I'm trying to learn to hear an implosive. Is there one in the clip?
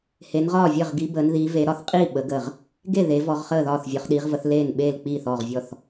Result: yes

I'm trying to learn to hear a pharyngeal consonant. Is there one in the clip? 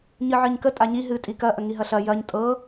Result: yes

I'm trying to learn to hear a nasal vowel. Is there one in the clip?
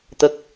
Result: no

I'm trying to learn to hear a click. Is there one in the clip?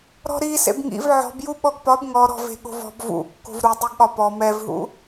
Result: no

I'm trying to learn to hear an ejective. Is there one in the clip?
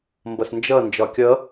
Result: no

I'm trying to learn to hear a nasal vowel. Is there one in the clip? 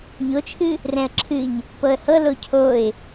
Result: yes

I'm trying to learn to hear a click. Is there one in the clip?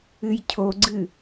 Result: yes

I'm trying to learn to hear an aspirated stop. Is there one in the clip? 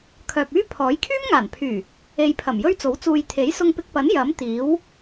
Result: yes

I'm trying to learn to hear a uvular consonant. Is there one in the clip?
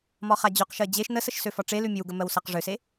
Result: yes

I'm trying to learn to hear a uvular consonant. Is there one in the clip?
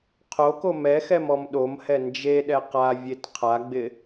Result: yes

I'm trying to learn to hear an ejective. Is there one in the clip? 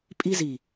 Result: yes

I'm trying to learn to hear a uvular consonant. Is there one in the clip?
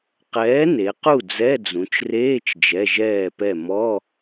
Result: yes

